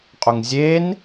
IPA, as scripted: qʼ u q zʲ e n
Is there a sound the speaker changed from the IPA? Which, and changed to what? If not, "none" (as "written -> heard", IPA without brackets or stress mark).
q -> ŋ